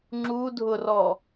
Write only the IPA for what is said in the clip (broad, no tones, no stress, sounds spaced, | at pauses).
ŋ͡ǁ u dʱ ʊ r ɔ